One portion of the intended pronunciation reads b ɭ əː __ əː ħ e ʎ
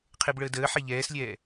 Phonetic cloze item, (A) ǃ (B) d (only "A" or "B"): B